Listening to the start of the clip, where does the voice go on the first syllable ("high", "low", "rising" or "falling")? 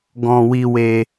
high